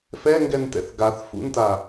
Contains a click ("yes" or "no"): no